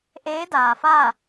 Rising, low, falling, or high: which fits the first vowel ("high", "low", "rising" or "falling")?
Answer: rising